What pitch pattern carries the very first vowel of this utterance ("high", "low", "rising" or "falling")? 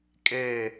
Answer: falling